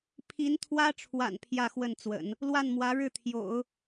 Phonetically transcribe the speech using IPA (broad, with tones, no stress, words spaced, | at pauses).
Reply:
pʰi˧˥nt̪ʰwä˥ʈ͡ʂʰwa̰˨˩n pʰjä˥˧xwə˥˩nt͡swə̰˨˩˦n | lwa˥˩nmwä˧˥ ɻɻ̩˥˩t̪ʰjo̰˨˩˦ʊ̯